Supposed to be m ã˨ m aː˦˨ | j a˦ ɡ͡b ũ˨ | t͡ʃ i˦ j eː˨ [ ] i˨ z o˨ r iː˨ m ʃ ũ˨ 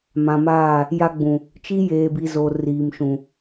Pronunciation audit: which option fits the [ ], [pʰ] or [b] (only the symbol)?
b